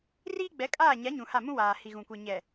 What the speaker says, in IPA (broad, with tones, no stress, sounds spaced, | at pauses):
r iː˦ ɡ͡b ɛ˨˦ kʼ aː˦˨ ɲ a˨˦ ɲ ũ˨ h a˦˨ m ũ˦ w aː˨ h i˨ ɣ ũ˨ kʷ e˨ ɲ ɛ˨